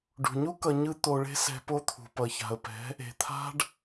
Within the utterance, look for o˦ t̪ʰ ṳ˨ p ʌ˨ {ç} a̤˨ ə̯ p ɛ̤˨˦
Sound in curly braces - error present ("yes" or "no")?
no